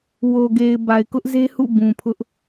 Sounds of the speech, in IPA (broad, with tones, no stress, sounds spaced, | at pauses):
w o˨ ɡ e˨ ɪ̯ b a˨ ɪ̯ k ʊ˦ ʔ z e˦ h ṵ˦˨ b ũ˨ pʰ ʊ˦ ʔ